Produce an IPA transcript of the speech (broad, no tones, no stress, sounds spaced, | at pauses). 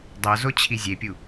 dˤ o z o t͡ɕʰ i zʲ e pʲ u